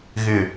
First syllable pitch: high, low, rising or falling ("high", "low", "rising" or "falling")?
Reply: low